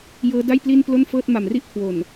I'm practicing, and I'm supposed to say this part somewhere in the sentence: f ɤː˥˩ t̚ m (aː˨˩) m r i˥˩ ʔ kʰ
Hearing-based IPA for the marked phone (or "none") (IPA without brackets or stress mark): a˨˩